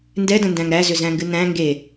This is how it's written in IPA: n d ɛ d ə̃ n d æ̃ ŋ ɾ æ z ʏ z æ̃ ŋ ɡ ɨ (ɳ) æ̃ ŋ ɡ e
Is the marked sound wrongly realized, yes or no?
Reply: yes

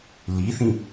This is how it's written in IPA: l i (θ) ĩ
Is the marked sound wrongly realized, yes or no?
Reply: no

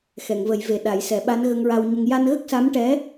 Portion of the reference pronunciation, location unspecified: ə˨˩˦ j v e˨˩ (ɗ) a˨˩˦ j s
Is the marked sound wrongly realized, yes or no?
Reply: no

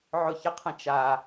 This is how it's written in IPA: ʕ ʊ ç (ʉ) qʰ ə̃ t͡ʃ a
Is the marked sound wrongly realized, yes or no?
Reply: yes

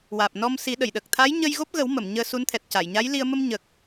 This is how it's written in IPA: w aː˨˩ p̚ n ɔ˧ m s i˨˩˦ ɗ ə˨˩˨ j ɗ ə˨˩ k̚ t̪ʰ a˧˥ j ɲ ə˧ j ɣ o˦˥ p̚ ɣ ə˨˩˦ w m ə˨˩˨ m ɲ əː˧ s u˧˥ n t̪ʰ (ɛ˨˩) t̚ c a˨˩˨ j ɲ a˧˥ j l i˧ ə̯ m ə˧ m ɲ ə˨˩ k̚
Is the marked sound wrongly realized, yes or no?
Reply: no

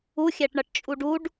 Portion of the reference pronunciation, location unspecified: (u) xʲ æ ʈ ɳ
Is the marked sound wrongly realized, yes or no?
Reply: no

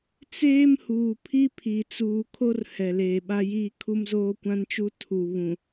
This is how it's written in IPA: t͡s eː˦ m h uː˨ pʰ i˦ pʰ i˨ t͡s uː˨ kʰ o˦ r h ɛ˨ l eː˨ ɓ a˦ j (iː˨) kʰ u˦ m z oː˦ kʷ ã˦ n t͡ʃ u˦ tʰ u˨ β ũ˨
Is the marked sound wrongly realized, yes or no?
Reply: yes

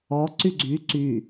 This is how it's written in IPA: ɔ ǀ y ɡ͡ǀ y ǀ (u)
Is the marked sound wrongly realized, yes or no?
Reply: yes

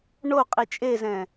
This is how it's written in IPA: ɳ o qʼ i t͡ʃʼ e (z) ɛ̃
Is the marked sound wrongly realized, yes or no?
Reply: no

